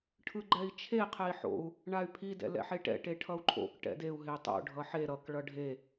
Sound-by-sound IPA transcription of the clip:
ʈʰ ɯ ɡ͡ǃ ɛ i̯ t͡ʃʰ e qʰ ɛ i̯ ħ o̰ u̯ | ɳ a y̯ pʰ i d ɛ̰ l ɛ̰ ħ e ʈ ɛ̰ ʈ e ʈʰ ʌ u̯ ǃʰ o̰ k ʈ ɛ̰ d e u̯ ɦ e tˤ o̰ ɖʱ ʌ ħ e ɾ ʌ k ɭ ʌ ɖʱ e

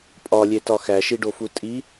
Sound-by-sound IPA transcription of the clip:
pʼ ɒ lʲ e t ɒ x æ ʃ i ɖ o f u tʼ i

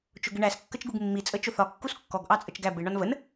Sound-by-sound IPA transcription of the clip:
t͡ʃ ʊ ɡ ɪ ɳ æ s kː ə t͡ʃ ɡ u ɡ mː i t͡sʼ ə t͡ʃ ʊ θ ɒ kː u s kː ɔ ɡ ʔ ɑ t͡sʼ ə t͡ʃ ɡ æ b ɪ ɳ ɒ n v ə n

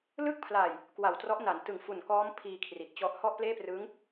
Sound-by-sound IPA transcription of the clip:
l ɯ˥˩ k̚ pʰ l a˨˩ j | k w a˨˩ w t r ɔ˦˥ ʔ n a˩˦ n t ɯ˨˩ ŋ f u˨˩ n k ɔː˦˥ m pʰ iː˧ kʰ r i˨˩ t̚ t͡ɕ ɔ˦˥ ʔ h ɔ˥˩ ʔ p l eː˥˩ p r ɯ˦˥ ŋ

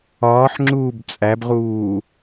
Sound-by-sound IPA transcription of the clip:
ɒː ħ ŋ͡ǁ uː b t͡sʼ æ b ʁ uː

